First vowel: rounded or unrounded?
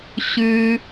rounded